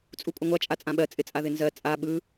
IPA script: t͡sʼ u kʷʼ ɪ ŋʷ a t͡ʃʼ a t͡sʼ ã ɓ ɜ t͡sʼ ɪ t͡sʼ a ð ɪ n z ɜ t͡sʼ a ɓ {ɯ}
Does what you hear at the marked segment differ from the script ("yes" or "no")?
no